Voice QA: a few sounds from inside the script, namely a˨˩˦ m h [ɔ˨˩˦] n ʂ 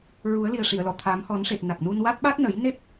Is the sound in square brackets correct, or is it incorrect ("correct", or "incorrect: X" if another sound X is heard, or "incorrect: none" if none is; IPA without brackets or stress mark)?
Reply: correct